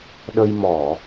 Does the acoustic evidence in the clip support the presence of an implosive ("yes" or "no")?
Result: yes